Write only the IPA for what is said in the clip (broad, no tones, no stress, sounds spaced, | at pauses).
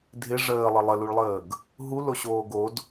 dʱ ɪ ʐ əː lˠ ə lˠ ə l u ɭ lˠ əː ɡ | ɦ u l o ɕ oː ɡ o d